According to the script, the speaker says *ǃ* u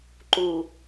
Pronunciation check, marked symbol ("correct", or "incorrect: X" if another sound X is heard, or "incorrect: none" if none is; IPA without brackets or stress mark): correct